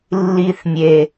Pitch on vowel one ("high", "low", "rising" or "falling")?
high